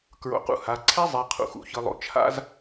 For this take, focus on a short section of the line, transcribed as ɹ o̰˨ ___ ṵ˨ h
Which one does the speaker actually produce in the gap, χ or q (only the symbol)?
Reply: q